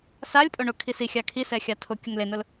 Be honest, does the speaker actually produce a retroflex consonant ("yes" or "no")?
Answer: yes